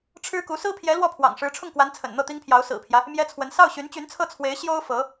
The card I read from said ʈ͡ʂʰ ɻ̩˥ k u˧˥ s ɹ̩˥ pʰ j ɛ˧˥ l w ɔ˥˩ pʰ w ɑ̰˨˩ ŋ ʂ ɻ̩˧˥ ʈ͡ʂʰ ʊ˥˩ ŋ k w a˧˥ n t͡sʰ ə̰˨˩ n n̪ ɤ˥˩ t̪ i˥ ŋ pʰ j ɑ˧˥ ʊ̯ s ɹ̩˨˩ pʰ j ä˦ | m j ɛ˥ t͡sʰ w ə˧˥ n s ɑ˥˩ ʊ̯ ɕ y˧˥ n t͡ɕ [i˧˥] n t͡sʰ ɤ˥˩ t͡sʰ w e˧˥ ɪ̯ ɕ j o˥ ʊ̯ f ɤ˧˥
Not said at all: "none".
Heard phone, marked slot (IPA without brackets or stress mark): y˧˥